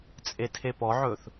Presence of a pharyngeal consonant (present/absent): present